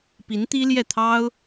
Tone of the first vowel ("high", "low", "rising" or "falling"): rising